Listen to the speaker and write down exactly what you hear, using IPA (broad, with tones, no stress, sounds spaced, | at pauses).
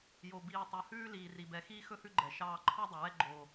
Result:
j o˨ b iː˨ tˤ œ˨ h ʉː˦ l iː˨ r i˨ b ɛ˨ x iː˦ x ɵ˦ h ʉ˦ ɡ͡ǃ ɛ˨ ʃ ɑː˦ ǃʰ ɑ˦ dˤ ɵ˨ w ɛ˦ ɡ͡ǃ o˦